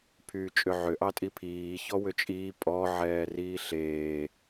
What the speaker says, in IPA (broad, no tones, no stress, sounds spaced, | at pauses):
pʰ yː t͡ʃʼ ʏ ʕ ʏ ʔ ɑ tʼ i pʰ iː ç ɔ w ʏ t͡ʃʼ iː pʼ ɔ ʕ ɛː r iː ɬ eː